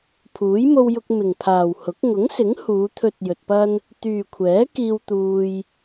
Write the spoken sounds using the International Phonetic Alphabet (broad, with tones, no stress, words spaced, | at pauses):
pʰuː˨˥jmo˧wjʊ˧k̚ mɪ˨ŋpʰaː˨whʊ˨˥k̚ ŋʊ˨˥ŋsɪ˨˥ŋ huː˨˧t̪ʰɵ˧t̚ jɵ˧t̚pɐ˥n | t̪yː˨kʷʰɛː˨˥kiː˧w t̪uː˧j